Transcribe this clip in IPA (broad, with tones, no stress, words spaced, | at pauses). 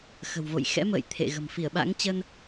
xə̤˨˩wvo̰˧˨j xɛ̰˧˥mə̰ː˧˨j t̪ʰḛ˧˨ɣə̤˨˩m fi˧˩ə̯ɓa̰˧˥ŋt͡ɕə˧n